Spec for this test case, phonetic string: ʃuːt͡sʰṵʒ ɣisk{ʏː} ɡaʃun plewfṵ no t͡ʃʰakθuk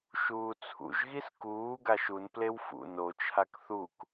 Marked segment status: incorrect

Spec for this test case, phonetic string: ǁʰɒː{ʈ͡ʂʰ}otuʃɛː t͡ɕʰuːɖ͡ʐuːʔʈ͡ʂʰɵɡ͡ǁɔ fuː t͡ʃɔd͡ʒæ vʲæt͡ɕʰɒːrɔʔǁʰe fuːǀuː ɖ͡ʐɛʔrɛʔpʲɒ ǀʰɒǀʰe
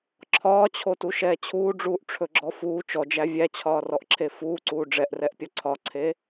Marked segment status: incorrect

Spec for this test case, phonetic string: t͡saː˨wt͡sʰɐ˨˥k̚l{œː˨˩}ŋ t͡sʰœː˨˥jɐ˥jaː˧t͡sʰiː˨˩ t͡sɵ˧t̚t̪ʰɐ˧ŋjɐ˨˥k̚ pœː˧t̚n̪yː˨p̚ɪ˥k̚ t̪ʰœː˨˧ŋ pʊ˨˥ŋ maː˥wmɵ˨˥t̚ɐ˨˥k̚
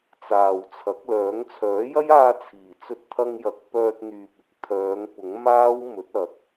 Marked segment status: incorrect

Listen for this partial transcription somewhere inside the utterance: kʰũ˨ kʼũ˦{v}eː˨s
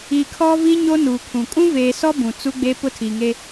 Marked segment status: correct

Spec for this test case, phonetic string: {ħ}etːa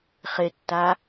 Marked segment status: incorrect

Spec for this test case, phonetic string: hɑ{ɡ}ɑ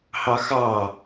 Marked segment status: incorrect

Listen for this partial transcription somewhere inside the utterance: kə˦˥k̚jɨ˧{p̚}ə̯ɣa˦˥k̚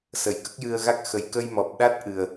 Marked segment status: incorrect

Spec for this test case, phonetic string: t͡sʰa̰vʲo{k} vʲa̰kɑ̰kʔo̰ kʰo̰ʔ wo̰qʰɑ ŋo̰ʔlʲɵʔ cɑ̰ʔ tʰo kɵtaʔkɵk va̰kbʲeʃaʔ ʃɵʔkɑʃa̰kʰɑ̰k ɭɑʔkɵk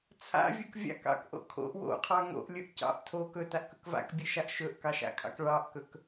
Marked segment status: correct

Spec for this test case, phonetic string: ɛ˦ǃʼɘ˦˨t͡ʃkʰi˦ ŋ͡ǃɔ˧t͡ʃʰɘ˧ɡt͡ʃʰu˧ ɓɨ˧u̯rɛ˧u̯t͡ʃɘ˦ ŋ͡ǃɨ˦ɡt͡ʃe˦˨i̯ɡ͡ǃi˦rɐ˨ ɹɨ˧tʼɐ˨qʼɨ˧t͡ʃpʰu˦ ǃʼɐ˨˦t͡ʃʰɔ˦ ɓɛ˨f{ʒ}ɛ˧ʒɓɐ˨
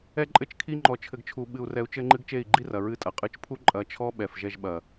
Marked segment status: correct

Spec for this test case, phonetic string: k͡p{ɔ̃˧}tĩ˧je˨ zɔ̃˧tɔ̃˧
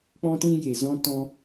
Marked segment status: correct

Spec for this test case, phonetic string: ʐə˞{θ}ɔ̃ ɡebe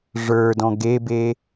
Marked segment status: incorrect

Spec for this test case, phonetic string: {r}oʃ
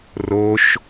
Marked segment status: correct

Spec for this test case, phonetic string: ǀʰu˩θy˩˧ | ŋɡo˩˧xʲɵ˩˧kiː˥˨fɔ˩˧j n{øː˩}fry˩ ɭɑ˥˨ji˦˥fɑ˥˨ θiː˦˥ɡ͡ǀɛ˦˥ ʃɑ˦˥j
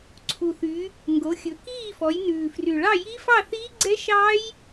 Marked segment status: incorrect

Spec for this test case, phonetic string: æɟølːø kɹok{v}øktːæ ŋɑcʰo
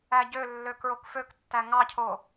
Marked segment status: incorrect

